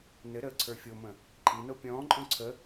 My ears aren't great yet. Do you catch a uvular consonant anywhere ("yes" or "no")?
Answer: no